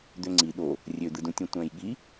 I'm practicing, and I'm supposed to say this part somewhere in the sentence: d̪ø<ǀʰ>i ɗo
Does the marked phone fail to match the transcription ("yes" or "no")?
yes